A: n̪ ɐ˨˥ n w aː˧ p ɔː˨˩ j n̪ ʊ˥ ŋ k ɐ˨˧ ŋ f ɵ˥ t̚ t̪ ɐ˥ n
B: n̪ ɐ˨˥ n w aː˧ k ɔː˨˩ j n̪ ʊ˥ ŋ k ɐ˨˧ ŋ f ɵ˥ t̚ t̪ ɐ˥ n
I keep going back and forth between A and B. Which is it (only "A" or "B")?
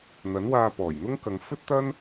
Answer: A